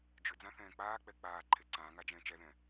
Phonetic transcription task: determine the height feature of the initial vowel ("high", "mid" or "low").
high